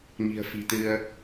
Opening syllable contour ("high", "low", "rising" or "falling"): low